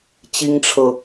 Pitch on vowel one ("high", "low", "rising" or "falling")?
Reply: high